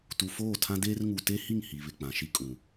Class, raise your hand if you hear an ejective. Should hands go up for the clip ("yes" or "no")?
yes